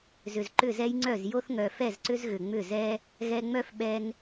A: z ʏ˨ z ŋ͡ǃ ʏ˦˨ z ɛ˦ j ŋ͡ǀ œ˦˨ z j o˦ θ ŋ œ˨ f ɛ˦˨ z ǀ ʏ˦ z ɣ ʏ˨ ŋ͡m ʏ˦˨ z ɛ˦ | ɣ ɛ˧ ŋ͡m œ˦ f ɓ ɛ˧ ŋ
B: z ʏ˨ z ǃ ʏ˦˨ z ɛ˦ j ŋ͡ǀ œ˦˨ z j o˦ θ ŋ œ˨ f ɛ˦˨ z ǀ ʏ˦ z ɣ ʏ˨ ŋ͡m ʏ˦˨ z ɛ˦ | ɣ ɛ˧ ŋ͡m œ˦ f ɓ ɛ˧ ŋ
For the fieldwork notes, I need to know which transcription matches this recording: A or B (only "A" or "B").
B